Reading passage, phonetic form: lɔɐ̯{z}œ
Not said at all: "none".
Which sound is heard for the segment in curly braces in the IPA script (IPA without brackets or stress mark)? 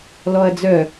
d͡z